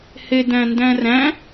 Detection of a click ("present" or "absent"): absent